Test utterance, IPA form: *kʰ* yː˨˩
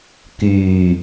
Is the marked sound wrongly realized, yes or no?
yes